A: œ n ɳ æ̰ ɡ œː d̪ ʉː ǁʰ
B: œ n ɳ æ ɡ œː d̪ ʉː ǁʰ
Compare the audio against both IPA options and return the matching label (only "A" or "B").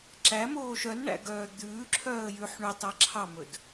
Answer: A